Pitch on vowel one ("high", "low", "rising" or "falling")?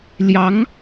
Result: rising